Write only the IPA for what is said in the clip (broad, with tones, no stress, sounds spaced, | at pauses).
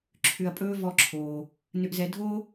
ǁʰ ʏ˧ ɐ̯ pʼ ɵː˦ v ɔ˦ ǁʰ oː˧ | n ʏ˧ ʔ z ɛ˧ dʱ oː˦